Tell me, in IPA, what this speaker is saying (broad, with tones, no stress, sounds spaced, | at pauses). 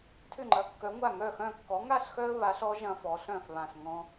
tʰ ʏ˥˩ ŋ͡ǃ ɐ˨˥ kː œ˨˥ ŋʷ a˥˩ ŋ œ˥˩ x œ̃˥˩ kː ɔ˨˥ ŋ a˥˩ ɬ x œ˦ ə̯ β a˨˥ ɬ ɔ˨˥ ʒ ɐ̃˦ f ɔ˨˥ ɬ œ̃˥˩ f β ã˧˩ s ŋ ɔ̃˦